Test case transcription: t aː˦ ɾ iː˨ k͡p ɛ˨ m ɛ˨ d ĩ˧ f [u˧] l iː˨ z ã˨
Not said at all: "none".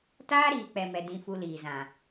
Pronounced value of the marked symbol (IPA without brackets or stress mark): u˧